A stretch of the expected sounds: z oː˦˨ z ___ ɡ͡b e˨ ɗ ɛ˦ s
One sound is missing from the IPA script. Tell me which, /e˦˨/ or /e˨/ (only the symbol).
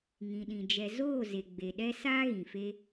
e˨